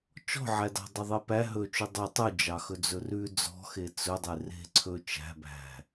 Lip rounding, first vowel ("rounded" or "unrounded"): rounded